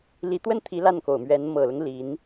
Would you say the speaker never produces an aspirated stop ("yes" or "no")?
no